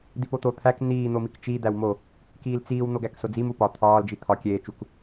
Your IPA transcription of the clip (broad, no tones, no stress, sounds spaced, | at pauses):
d̪ i p o t̪ o t̪ʰ æ k n̪ iː n̪ o m i k t͡ʃ i d̪ æ w m o | k iː l t͡s iː w n̪ o ɡ æ k s o d͡z i m u p ɒ t̪ʰ ɒː l d͡ʒ i t̪ʰ ɒ kʲ eː t͡ʃ u k